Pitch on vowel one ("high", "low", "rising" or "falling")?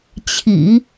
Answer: low